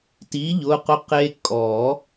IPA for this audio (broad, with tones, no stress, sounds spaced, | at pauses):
t i˩˥ ʎ ʊ˩˧˩ q ʊ˧ q e˧ kʼ ɔ˨˩˦